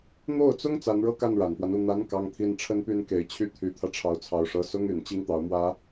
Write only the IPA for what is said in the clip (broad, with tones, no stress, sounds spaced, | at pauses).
n̪ o˥˩ ʊ̯ t͡s ʊ˥ ŋ t͡s a˧˥ n ɻ ɤ˥˧ k a˥˩ n ɻ a˨˩ n p w a˦ n u˥˩ n̪ a˧˥ n k ɑ˥ ŋ t̪ʰ i˥ n ʈ͡ʂʰ ə˥ n p y˥ n k e˧˥ ɪ̯ t͡ɕʰ y˥˩ t̪ʰ y˧˥ t̪ʰ ä˧ ʈ͡ʂʰ ɑ˧˥ ʊ̯ t͡sʰ ɑ˨˩ ʊ̯ ʂ ɤ˧˥ s ʊ˥ ŋ y˨˩ n t͡ɕ i˥ ŋ t̪ ɑ˧˥ ʊ̯ m w ä˥